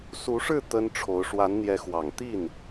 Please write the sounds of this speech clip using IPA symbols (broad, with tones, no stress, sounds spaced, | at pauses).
s u˧˥ ʂ ɻ̩˥˩ t̪ ə˥ n ʈ͡ʂʰ o˧˥ ʊ̯ ʂ w a˧˥ n n̪ j ɛ˧˥ x w ɑ˨˩ ŋ t̪ i˥˩ n